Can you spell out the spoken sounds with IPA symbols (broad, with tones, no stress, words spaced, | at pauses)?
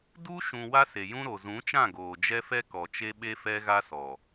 du˦ ʃũ˨ wa˦se˨jũ˦ɾo˨ zũ˨˦t͡ʃã˦˨ ɡoː˨d͡ʒɛ˦ fɛ˦kɔ˨t͡ʃe˦ ɓe˦fɛ˦ɣa˦sɔ˨